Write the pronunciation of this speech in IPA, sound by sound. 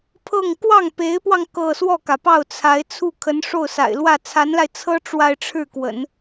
pʰɤ˥˧ŋ kwɑ˥˩ŋpe˧˥ɪ̯pwɑ˧ŋ kɤ˥˧ swɔ˥˩kä˩pɑ˥˩ʊ̯t͡sʰa˧˥ɪ̯ t͡sʰu˥˩ kʰə˧˥nʂo˥˩ʊ̯sa̰˨˩ɪ̯lwä˥˩ t͡sʰa˧˥nla˧ɪ̯ t͡sʰɤ˥ ʈ͡ʂwa˥˧ɪ̯ʈ͡ʂʰɻ̩˥˩ kwə̰˨˩˦n

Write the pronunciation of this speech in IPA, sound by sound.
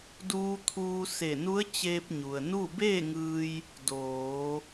duː˧t̪ʰuː˧ se˧˩nu˧˥ə̯ t͡ɕeː˧p̚ɲu˩ə̯nu˥˨ beː˥˨ŋɯː˧j | doː˩˧

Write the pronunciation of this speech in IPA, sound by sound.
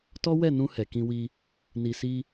tɔ˦wɛ˦˨nũ˧ hɛ˨kĩ˧wi˧ | ni˨si˧

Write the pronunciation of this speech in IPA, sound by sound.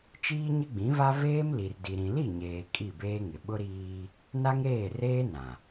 t͡ʃiː˦ɲɪ˦ɡ͡bĩ˨˦va˦ veː˦mli˨rdi˨ ɾĩ˨li˦˨ ɲeː˨ kʼi˦˨beː˦ŋɪ˨ ɓʊ˦ɾiː˦ | na˦ŋɾeː˦˨reː˦ nã˨

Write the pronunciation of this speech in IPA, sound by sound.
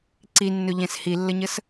ǀinːɵʎɛ̃s hilːəɲəs

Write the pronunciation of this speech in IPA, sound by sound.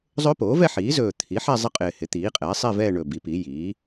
zˤɵː˦˥poː˩˥vɛ˥˧ ħiː˩˥zɵː˨˩ t̪ʰi˩˥ ħɛ˥˧zˤɪ˥˧qʼɪː˨˩ hɪ˩˥t̪iː˩˥qʼɛː˩˥sˤi˥˧ vɛː˥˧ɳɵ˨˩ bi˩˥pi˩˥ jiː˩˥

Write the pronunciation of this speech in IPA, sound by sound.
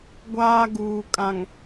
ɡʷaː˦ɡuː˨kʼã˨ŋ

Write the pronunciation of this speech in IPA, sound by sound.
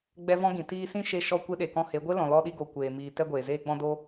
ɡ͡bɛ˦vɔ̃˦ɡĩ˨ tiː˧ sĩ˦ʃe˧ʃɔ˧ kʷe˧ɗe˨kɔ̃˧he˨˦ ɡʷe˦lɔ̃˨ lɔ˧ɗi˧ɡo˨ kʷeː˨miː˨ tɛ˧ɡʷeː˨zeː˧ ɡ͡bɔ̃˧do˧

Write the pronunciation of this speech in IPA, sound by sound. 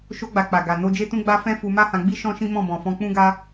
ʃo˧ɡ͡ba˨ k͡pa˨ɡa˨ no˧d͡ʒe˦tũ˦ɡ͡ba˦ fɛ̃˦ fu˧ma˦hã˧ɡ͡bi˦ ʃɔ̃˦ʃĩ˦ mɔ̃˦˨bɔ̃˨fɔ̃˧ k͡pũ˦ɡa˦

